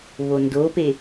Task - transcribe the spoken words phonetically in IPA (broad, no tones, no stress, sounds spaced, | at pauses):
β o n d o p e